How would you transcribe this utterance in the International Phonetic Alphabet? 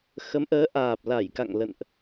x ə˨˦ m ʔ əː˨˦ ʔ aː˨˩ p̚ l a˧˩ j k a̰˧˨ ŋ l ə̰˧˨ n ʔ

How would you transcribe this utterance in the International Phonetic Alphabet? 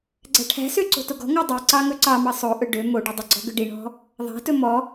ɡ͡ǀ æ̤ ʈʰ æ̤ s ø ǀ o̤ t o ɡ ɔ̤ ŋ ɑ dˤ i ǀ ɑ ŋ ɵ ǀ ɑ m ɑ sˤ o ʔ ɵ ɖ ø m o ɖ u dˤ ɵ ɡ͡ǀ ɔ̤ ɡ ø ɖ i ɳ ɔ̤ | ðˤ æ̤ t ɵ m ɔ

